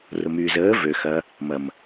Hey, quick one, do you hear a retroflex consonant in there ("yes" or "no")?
no